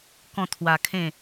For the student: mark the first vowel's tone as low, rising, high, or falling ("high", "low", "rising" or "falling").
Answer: falling